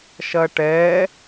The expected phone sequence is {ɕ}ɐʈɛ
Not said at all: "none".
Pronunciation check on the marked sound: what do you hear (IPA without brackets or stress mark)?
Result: ʃ